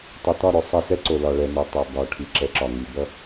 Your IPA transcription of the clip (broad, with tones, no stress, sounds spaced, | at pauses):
tˤ ʌ˨ t ɒ˦˨ ɾ o˨ sˤ ʌ˦˨ s ɛ˦ ǀ o˨ l ɒ˨ ɭ ɛ˨ n ø˨ tˤ ɛ˨ b ɒ˨ ʈʰ i˨ ǁ ɛ˨˦ ǁ ɒ˨ ŋ i˨ b ʌ˦